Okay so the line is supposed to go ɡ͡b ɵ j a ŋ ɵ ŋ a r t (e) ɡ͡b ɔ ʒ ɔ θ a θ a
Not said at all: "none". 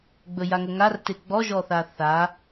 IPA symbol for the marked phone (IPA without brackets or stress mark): e